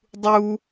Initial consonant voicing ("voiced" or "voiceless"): voiced